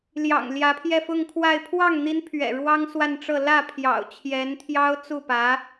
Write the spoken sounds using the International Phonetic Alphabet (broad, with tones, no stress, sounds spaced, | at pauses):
l j ɑ̰˨˩ ŋ l j ä˧˥ pʰ j ɛ˥˧ f ʊ˥˧ ŋ kʰ w a˥˧ ɪ̯ pʰ w ɑ˥˩ ŋ n̪ i˧˥ n pʰ ɥ ɛ̰˨˩ ɻ w ɑ˥ ŋ s w a˥˧ n ʈ͡ʂ ɤ˥˧ l ä˥˩ pʰ j ɑ̰˨˩ ʊ̯ t͡ɕʰ j ɛ˧˥ n t̪ʰ j ɑ˥ ʊ̯ t͡s u˥˩ p ä˧˥